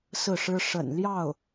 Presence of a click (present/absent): absent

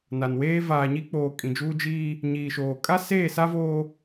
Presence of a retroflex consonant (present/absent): absent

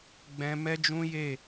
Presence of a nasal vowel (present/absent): present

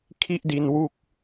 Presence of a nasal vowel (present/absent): absent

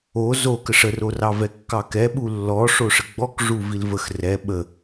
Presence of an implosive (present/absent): present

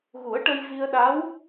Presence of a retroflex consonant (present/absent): present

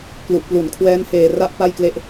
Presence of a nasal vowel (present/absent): absent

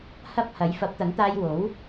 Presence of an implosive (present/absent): absent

